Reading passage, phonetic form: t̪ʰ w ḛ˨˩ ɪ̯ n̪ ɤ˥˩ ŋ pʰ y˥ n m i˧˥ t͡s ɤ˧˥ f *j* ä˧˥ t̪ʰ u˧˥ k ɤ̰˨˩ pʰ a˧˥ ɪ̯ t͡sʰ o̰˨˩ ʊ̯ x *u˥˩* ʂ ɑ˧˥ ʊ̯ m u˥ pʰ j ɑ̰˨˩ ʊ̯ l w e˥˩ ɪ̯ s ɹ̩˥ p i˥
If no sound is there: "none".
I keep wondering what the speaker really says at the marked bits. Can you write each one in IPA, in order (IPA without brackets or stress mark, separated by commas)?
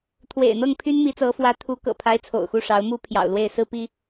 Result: w, u˥˩